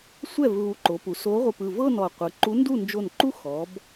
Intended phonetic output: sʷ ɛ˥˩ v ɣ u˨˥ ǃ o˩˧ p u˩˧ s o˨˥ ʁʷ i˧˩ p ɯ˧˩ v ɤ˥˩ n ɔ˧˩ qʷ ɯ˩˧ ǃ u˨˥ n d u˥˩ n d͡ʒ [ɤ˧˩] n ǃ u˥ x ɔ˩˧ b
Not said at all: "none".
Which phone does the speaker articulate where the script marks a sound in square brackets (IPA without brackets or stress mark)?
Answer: o˧˩